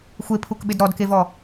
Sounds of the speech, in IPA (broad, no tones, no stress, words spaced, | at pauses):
xʷepʰukɓɪd ɾɔdkevɔ